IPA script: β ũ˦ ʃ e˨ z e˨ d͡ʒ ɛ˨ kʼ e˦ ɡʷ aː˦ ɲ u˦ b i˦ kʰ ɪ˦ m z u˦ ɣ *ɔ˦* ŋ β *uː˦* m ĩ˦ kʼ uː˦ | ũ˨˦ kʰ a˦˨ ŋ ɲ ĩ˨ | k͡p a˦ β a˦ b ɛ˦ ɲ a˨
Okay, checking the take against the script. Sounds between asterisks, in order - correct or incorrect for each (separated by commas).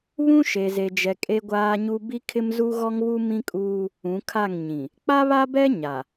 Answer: correct, incorrect